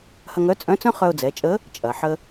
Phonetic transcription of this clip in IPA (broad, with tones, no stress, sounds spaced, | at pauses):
h ɐ˧ ŋ œ˧˥ t͡sʼ œ̃˧˥ t͡s œ̃˥ χ œ˧ ʊ̯ d͡z ɛ˩˧ t͡ʃʼ ə˧˥ | t͡ʃʼ ɐ˩ ħ ə˧